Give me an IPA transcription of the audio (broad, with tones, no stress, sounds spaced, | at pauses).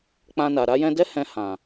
k͡p ã˧ n a˨ ɾ a˧ j ɛ̃˧ d ɛ˦ h ɛ̃˧ h ã˨